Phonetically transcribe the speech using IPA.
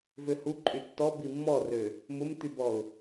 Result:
vøhuǃʼy tːɔbi mːɔrø | mʊmt̪ybɔʊ̯

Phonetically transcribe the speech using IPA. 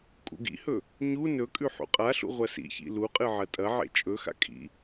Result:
kʼṵɡḭhɵ | ɲu nɵkʼʉ ħṵqʼaɬṵ ʁʷɐsḭçḭ luqʼɨ ʕɐtʼɐʕḛ t͡ʃʼɵxa̰ kʼḭ

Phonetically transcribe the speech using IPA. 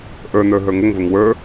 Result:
ʔə˞n̪ə˞ ɦə˞ŋəŋvəŋ wə˞

